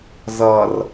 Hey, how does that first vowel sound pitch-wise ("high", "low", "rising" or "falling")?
low